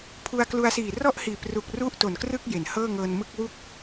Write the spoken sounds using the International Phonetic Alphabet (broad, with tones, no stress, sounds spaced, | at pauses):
pʰ u˧ a̯ k l u˧ a̯ s iː˨˩ r ɔ˥˩ ʔ h iː˨˩ p r u˨˩ k̚ r u˥˩ ʔ t o˨˩ n k r ɯ˥˩ k̚ j e˩˦ n h ɤː˥˩ ŋ ɤː˧ n m ɯ˥˩ k̚ w u˦˥ k̚